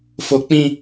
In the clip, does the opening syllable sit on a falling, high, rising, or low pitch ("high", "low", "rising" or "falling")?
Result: high